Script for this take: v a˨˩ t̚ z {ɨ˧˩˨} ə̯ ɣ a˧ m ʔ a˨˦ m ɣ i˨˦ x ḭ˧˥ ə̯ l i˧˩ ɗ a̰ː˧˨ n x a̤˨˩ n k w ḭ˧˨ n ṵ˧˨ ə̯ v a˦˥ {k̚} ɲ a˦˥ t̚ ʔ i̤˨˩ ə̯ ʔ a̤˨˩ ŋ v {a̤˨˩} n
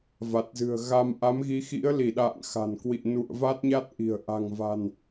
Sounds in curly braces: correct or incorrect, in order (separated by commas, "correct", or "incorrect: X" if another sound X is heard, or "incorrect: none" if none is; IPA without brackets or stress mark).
incorrect: ɨ̤˨˩, incorrect: t̚, correct